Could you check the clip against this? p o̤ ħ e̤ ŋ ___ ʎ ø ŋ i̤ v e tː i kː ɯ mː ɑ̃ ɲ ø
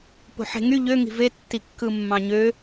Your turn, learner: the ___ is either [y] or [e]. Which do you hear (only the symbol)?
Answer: y